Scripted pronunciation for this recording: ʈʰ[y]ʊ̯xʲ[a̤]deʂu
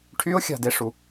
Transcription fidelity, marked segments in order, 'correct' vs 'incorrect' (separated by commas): correct, correct